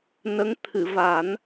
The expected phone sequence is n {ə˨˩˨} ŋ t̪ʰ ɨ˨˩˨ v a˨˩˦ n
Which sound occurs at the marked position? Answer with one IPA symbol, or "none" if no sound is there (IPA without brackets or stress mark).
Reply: ə˧˥